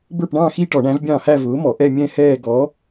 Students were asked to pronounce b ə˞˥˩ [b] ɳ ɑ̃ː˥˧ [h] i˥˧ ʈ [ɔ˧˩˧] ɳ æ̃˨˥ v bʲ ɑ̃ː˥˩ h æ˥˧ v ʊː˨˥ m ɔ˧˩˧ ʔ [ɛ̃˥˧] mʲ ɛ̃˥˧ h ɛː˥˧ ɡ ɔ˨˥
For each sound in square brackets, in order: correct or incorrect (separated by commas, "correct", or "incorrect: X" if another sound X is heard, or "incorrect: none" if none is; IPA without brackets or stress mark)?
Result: incorrect: p, incorrect: x, correct, incorrect: ɛ˥˧